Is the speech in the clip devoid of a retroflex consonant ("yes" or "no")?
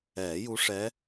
no